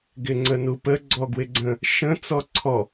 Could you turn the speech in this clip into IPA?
ɡɪŋ͡ǀənupə ɡ͡ǀɔɡwɪɡ͡ǀə̃ | ʃə̃ t͡sɔǀʰɔ

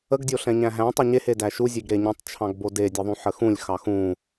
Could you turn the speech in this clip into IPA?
əɡdʲoɬɛ̃ɲæ̃ ɦæ̃tˤø ɲehedæ ʃuzʲeɡɾe ɲũtˤt͡ʃʰɑ̃ɡbo dedʲeðˤũħə xũlʲxɑ xũ

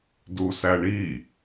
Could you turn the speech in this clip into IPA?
dusæɳi

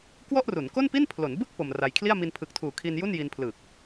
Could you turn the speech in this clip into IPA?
kwɔ˥˩ʔru˩˦nko˥˩npi˥˩n pʰlo˩˦nbɯ˥˩k̚ po˧mra˧j kʰli˥˩a̯ mi˧npʰɯ˨˩k̚tʰuː˨˩kʰi˧n ju˥˩nji˧npʰlɯː˨˩k̚

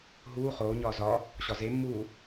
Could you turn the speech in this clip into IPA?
ɦuː χoːɲɒː zɒ | ɕɒzemːuː

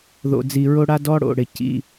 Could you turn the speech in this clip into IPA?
ðo̰˨ d͡zi˨ɹo˦ɽa˦ dɔ˦ɽo̰˨ ɽɪ˨cḭ˦

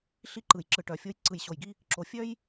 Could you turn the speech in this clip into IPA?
ɬi˦ǃɯ˨j ǁɯ˨ʈœ˨fʲo˦j ǀɯ˨jɕo˨jɡi˦ | ǁo˨ fʲœ˦j

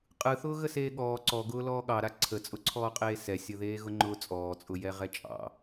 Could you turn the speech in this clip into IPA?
qʼɯθʊː ɣəseːɠɔː ǀɔɡʊː lɔːɠɑɾa ǀʰət͡sʼʊǀʰɔːqʼeː sɛsʲəðeː ɣʊŋ͡ǃʊːt͡sʼɔːt͡sʼʊ jɛʁɛt͡ʃʼɑ̰

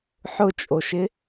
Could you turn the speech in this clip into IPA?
ħʊt͡ʃʼoʃɪ

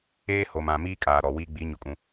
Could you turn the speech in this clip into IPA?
eː˦ho˨m ã˨miː˦ kʼaː˨ ɾɔ˨wi˦ ɡ͡bi˨˦ɲʊ˨kʼũ˨

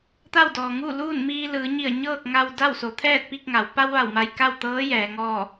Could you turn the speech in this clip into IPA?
t̪a˥˨wdɔː˩ŋuː˥˨ luː˥˨nmiː˧lɯː˩˧ɲi˧˩ə̯ ɲɤː˥˨k̚ŋa˧w da˥˨wso˩˧t̪ʰɛː˥˨t̚pi˥˨k̚ ŋa˩˧w pa˧wʋa˧˩w ma˧jka˥˨wt̪ɤː˧˥ jɛː˩˧ŋɔː˥˨

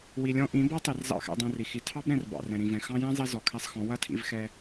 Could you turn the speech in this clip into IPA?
wi˨lʲɔ̃˧ ʔĩ˨˦ bɔ˦tˤi˨r zɑ̰˦˨xɛ̰˧ dˤɛ̃˧ri˨ xi˨tʰɑ˦b ɾɛ̃˧r bɑ̰˨rɛ̃˨ɾĩ˨vɛ̃˨ xɑ̃˦ jɛ̃˦zˤi˧ zɔ˨kʰɛ˧sˤxɔ̃˨˦ wɐ˦tʰḭ˧vxɛ˧

